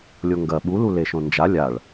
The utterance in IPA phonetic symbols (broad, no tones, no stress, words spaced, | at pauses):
lʲoŋɡɐ ɓulu leʃõnd͡ʒa lʲaɭ